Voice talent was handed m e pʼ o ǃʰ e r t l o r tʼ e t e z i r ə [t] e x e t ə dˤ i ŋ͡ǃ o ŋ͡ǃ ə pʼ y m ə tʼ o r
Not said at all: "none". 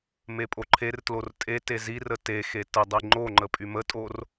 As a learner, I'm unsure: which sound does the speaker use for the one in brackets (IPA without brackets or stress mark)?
t